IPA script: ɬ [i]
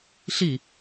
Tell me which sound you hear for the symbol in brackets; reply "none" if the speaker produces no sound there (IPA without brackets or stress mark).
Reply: i